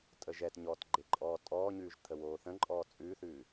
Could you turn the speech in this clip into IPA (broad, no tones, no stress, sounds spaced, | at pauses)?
tʼ ə ʒ ɛ t ɲ ɔː t ɡ͡ǃ e ǃʼ ɔː tʼ ɔː ɲ ʉː ʒ t̪ʰ ə w oː θ ə̃ ǃʼ ɔː t͡sʼ ʉː θ ʉː